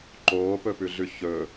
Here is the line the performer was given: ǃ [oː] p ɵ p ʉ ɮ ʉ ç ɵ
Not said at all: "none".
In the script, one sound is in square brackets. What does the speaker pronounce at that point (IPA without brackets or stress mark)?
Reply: oː